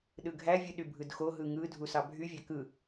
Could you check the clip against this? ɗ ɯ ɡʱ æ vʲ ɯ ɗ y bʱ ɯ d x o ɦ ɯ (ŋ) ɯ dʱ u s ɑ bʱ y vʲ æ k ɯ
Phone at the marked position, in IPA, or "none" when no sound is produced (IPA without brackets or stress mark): ŋ